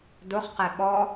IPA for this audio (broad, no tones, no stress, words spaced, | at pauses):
dʊχqɛ ɓɔ